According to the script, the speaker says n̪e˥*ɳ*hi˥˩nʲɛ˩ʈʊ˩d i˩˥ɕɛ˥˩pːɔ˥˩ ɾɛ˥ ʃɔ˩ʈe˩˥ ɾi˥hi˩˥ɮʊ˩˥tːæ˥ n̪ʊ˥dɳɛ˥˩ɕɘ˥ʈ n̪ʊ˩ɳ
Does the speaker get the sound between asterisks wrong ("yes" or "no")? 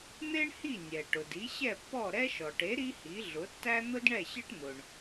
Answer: no